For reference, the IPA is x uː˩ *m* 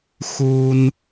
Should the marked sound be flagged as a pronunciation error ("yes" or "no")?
yes